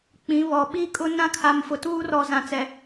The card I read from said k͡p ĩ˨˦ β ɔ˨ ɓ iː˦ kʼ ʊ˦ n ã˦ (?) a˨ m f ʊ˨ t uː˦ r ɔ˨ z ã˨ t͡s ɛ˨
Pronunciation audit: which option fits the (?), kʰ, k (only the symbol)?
kʰ